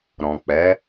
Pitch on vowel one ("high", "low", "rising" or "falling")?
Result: low